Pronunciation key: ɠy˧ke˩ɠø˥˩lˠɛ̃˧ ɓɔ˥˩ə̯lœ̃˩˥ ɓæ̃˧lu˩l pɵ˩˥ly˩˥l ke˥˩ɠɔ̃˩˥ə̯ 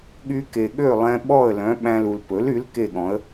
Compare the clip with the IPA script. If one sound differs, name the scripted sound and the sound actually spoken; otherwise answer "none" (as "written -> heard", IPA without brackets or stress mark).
none